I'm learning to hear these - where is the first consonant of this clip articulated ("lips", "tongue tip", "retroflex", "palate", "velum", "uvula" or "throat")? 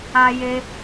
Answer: palate